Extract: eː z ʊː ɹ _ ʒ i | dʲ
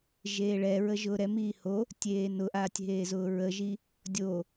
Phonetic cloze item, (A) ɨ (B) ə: B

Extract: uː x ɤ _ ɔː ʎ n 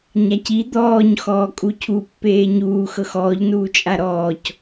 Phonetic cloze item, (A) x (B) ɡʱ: A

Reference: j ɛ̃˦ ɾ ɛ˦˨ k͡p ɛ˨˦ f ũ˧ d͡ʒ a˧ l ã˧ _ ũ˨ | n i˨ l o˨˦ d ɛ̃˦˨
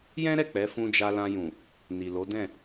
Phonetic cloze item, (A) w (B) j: B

